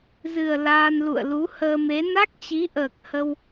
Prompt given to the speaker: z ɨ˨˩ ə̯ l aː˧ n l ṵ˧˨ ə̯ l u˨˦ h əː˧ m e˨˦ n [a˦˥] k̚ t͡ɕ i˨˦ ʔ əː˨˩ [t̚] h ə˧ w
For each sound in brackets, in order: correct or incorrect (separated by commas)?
correct, incorrect